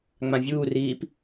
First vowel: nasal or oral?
nasal